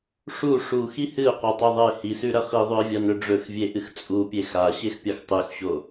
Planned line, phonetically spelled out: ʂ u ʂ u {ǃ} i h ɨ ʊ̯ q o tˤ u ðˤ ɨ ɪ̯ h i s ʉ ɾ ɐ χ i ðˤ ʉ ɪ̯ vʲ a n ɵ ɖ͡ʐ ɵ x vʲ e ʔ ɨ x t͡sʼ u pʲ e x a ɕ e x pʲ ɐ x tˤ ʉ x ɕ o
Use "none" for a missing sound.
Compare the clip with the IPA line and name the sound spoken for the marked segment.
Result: x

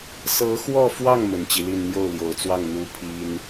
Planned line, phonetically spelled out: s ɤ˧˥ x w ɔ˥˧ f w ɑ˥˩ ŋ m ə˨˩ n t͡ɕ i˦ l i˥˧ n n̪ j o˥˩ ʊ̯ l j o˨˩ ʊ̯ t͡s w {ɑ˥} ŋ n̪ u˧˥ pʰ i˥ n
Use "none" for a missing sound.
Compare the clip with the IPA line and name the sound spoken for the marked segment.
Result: ɑ˥˩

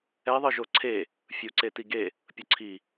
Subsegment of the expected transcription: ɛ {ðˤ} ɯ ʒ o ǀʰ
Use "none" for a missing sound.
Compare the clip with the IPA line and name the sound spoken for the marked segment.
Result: ðˤ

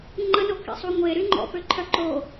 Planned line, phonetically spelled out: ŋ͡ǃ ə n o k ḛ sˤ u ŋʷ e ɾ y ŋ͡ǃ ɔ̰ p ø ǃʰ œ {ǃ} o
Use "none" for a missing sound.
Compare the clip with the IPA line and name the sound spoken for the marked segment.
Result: ǃ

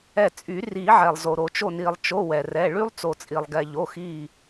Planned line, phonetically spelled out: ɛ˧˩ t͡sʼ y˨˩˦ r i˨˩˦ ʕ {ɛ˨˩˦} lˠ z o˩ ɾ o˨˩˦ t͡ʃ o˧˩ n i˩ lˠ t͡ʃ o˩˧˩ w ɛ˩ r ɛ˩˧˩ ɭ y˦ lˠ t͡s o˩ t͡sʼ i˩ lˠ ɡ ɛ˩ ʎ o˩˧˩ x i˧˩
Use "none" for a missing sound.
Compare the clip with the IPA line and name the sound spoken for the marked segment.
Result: ɛ˩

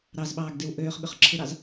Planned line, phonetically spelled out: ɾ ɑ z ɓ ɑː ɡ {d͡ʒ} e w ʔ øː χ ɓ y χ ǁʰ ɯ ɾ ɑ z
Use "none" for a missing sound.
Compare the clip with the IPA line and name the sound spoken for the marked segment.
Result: d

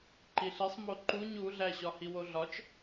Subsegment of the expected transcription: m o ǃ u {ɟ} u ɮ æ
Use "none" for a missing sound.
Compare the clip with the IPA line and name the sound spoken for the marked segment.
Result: ɲ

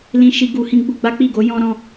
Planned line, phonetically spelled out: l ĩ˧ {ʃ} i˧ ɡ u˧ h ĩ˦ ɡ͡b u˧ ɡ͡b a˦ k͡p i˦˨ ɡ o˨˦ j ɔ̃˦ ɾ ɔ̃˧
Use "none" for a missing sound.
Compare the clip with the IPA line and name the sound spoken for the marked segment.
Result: ʃ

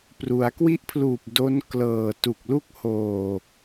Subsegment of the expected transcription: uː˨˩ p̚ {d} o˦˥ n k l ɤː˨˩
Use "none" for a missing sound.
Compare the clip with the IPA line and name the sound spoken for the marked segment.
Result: d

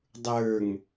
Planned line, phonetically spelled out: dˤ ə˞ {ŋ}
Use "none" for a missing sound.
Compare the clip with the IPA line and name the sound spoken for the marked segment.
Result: ŋ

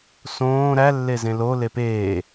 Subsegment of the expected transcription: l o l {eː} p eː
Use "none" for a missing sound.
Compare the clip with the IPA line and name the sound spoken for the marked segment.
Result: e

